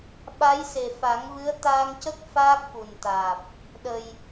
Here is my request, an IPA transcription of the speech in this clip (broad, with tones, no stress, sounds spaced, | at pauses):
ɓ a˧˥ j s e˨˩ f a˨˩˦ ŋ v ɨ˧˥ ə̯ t̪ aː˧ ŋ c ə˦˥ k̚ f aː˦˥ k̚ f u˨˩ n t̪ aː˨˩ p̚ | ɗ ə˨˩ j